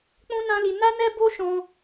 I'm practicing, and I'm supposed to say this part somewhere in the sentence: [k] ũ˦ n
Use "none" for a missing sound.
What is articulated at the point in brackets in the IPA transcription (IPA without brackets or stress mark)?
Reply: k͡p